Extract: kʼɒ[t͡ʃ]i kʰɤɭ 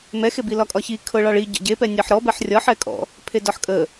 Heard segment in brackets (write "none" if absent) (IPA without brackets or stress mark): ç